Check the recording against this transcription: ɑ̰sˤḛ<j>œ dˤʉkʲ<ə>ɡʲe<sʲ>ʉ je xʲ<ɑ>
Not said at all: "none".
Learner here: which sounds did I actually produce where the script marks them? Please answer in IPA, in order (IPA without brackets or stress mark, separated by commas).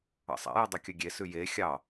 j, œ, s, ɑ